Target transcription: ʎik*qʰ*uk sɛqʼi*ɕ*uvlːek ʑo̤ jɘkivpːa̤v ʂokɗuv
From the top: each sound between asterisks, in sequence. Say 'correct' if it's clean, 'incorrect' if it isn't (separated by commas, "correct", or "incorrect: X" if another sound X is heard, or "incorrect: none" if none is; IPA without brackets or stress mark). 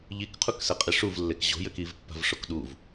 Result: correct, incorrect: ʂ